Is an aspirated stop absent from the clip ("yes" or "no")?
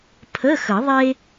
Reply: no